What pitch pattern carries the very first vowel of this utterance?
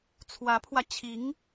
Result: rising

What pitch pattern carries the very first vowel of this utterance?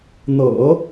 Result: low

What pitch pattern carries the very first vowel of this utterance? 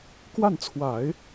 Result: falling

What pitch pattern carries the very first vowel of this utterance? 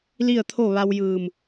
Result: falling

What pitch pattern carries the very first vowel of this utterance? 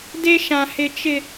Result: high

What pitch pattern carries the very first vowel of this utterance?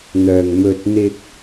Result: low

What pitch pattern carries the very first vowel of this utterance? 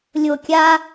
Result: falling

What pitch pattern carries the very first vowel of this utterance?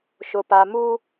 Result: low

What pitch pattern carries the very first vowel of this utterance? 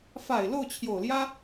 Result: low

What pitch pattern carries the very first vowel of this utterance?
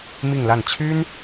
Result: falling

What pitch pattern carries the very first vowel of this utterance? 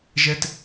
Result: high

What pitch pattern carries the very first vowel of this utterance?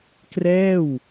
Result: falling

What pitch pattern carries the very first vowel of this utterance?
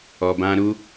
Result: low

